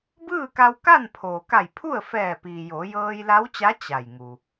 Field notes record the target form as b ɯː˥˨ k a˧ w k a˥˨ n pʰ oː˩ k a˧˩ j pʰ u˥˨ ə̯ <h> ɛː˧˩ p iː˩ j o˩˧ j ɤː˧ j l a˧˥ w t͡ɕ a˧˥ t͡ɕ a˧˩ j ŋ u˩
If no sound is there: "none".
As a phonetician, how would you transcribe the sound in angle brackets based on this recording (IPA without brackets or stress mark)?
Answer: f